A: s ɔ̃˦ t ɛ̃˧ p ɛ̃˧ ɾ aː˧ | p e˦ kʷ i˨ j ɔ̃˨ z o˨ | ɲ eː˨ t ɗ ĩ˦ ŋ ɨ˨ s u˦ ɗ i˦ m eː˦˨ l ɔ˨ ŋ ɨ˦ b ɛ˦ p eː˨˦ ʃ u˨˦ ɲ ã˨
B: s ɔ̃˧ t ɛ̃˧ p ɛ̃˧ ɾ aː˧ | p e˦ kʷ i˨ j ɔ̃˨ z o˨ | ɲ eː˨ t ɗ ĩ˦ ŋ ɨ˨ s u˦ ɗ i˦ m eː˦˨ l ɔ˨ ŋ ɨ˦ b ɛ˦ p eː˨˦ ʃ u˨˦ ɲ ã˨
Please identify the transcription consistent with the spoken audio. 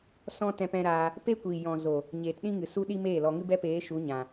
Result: A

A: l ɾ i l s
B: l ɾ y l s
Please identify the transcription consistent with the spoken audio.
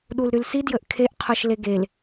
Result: B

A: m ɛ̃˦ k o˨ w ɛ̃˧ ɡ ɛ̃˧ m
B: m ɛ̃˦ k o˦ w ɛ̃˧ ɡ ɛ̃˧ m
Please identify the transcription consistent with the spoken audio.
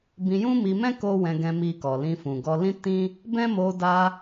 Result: B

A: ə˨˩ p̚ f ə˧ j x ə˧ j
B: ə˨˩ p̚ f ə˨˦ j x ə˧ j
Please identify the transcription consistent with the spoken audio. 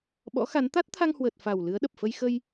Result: A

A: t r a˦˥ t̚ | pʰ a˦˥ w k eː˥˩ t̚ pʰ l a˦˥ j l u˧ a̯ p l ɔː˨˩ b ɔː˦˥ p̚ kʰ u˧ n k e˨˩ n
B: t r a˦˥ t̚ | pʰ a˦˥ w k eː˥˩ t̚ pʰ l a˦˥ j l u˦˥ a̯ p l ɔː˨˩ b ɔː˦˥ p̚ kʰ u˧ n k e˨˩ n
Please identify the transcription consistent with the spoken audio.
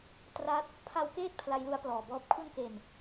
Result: B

